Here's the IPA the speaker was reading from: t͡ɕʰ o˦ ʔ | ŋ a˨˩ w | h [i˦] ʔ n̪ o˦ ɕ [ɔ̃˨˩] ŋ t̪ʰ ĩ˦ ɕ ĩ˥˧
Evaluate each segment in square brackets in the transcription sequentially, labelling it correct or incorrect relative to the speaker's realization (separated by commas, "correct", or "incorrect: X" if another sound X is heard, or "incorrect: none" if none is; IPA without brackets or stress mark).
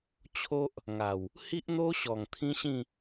correct, incorrect: ɔ˨˩